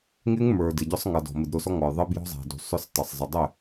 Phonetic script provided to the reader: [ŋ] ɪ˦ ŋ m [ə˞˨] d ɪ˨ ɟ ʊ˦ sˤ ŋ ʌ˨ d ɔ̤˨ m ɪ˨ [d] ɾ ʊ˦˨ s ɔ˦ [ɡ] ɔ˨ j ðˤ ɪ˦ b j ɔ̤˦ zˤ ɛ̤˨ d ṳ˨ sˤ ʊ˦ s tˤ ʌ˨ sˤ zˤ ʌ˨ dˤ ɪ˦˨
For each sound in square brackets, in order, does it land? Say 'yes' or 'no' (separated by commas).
yes, yes, yes, no